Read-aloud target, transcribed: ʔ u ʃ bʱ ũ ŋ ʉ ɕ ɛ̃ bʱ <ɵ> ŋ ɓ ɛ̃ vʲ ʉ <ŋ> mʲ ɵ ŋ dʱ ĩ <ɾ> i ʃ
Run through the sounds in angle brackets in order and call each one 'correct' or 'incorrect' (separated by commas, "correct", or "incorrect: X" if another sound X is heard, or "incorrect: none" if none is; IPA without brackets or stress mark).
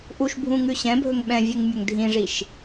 correct, correct, incorrect: ʐ